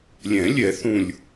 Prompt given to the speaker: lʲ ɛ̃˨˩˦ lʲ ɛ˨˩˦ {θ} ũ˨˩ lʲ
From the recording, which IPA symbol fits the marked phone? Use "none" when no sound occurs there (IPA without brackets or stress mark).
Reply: θ